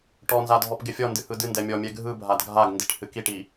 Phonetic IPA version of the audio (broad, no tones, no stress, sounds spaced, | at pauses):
ʈ ɔ n z a dʱ ɔ p ɡ ɪ fʲ ɔ n d ɨ h ɯ d ɨ n d ɛ mʲ ɔ mʲ ɛ ɡʱ ɯ bʱ a d ɡʱ a ɡ n d i ʈ h ɨ k i ʈ i